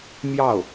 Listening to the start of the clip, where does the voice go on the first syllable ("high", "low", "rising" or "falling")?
falling